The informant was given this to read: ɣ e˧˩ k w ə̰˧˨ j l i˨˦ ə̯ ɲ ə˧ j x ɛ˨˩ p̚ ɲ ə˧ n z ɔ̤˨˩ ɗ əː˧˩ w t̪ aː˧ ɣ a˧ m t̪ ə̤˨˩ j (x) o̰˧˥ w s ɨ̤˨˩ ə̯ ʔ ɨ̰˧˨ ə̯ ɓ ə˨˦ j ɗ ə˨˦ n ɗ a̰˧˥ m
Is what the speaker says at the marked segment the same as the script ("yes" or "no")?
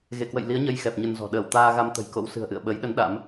no